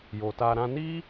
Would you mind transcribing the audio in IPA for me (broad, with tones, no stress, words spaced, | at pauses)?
jo˨ta˧ɾã˦ ni˦